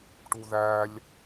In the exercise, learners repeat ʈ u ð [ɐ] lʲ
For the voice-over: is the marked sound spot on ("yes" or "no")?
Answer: no